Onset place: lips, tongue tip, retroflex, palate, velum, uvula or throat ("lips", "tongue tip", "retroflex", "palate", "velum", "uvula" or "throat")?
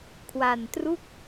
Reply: velum